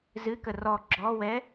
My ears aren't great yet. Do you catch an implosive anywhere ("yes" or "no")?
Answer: no